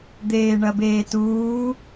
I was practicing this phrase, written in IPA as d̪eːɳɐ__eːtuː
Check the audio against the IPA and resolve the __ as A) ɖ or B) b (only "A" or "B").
B